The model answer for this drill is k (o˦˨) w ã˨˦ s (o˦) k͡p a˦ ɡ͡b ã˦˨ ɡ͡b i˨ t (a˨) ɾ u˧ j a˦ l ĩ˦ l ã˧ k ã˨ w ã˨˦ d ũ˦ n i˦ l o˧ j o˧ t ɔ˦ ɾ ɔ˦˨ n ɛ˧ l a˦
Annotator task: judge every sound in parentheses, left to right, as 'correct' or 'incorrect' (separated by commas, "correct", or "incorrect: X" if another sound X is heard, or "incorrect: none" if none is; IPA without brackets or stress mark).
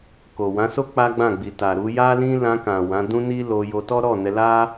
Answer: incorrect: o˨, correct, correct